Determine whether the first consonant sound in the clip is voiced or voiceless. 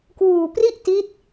voiceless